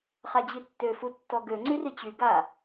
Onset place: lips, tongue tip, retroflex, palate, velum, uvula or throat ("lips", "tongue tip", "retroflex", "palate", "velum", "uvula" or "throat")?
uvula